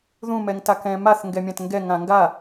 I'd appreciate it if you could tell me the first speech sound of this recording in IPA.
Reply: ð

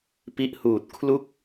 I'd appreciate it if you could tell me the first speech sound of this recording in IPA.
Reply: p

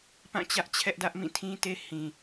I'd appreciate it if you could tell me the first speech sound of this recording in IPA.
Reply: p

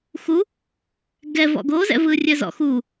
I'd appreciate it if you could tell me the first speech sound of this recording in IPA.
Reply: x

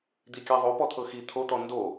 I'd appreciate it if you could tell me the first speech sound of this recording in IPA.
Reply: d̪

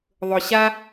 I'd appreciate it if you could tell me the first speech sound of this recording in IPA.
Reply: ðˤ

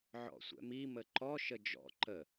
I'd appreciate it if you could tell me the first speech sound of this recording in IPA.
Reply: ʕ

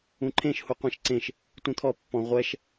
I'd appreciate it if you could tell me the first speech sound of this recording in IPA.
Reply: ũ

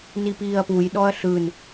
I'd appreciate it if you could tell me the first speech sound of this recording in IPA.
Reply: n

